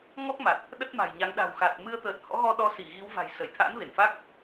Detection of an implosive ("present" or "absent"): present